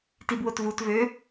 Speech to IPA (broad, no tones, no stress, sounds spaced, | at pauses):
t i b w o t v u t v ø